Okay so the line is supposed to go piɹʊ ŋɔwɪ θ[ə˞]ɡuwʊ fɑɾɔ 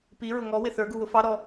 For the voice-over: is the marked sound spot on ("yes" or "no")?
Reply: yes